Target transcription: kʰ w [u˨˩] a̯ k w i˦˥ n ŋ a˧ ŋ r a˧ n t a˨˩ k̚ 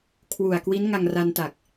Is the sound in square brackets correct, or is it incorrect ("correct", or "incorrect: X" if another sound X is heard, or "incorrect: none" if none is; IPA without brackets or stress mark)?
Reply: correct